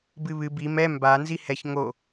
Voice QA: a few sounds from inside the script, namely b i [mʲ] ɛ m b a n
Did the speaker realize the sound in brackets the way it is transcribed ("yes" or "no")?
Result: no